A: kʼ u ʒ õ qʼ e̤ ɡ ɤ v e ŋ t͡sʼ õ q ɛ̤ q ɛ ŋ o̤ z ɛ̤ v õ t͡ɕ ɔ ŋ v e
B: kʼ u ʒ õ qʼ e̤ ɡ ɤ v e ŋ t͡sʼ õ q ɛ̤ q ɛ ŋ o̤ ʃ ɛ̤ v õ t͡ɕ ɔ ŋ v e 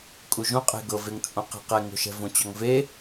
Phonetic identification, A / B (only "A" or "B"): B